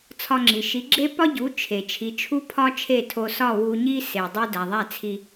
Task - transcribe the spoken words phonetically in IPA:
t͡sʰ ɒ˧ ŋ͡ǁ i˩ ʃ i˩˥ ɡ͡ǁ e˥ p ɒ˥ ɟ u˩˥ t͡ʃʰ e˩ t͡ʃʰ i˩˥ t͡ʃʰ u˥ pʰ ɒ˥ t͡ʃʰ e˥˩ tʰ o˧ s ɒ˥˩ w u˧ ɲ i˥ s e˩ dˤ i˥ d æ˩ ðˤ æ˥˩ t͡sʰ i˧

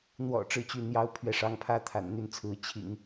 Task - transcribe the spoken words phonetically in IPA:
n̪ w ɔ̰˨˩ ʈ͡ʂ ɻ̩˥˧ t͡ɕ y˥˩ n̪ j ɑ˥ ʊ̯ pʰ ɥ ɛ˥˩ ʂ ɑ˥ ŋ pʰ ä˥ t̪ʰ a̰˨˩ n n̪ y˥˩ n t͡sʰ ɹ̩˧˥ t͡ɕʰ ḭ˨˩˦ ŋ

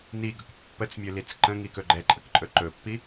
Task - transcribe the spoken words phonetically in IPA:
n i ɡ ɵ k pː ə t͡s mʲ ɵ l i t͡s ǃ ə̃ ŋ i k ɵ ɡ͡ǃ ɛ ǃʼ ə k ǃʼ ɵ ǃ ɵ pː i

